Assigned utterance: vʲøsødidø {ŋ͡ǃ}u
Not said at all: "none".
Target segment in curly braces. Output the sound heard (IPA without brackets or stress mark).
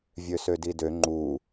ŋ͡ǃ